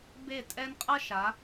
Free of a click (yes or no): yes